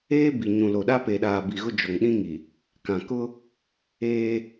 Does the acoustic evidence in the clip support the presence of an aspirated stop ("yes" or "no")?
no